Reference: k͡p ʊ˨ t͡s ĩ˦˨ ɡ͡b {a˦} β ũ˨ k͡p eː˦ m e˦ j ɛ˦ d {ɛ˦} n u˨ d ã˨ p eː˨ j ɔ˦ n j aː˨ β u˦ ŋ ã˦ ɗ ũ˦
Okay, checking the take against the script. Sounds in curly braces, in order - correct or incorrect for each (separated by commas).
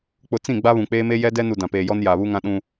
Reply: correct, correct